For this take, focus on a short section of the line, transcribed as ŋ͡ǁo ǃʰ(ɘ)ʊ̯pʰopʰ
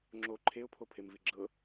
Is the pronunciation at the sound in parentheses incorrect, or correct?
incorrect